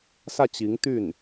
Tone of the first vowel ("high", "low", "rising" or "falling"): falling